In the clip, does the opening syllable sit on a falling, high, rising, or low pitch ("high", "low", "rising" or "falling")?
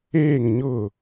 falling